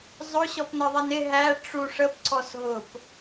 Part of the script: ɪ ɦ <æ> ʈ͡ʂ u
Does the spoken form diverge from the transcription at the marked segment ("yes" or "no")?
no